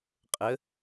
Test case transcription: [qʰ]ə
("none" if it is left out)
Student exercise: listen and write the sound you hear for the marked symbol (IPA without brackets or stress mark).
qʼ